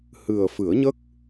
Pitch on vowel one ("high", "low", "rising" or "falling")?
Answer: low